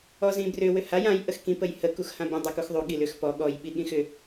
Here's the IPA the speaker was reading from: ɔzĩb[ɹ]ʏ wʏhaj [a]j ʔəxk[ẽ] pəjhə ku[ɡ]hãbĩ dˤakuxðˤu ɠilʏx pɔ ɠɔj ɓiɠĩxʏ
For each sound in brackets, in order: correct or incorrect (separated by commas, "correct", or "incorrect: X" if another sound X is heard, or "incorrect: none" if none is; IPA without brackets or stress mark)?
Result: incorrect: r, incorrect: ã, incorrect: ĩ, incorrect: x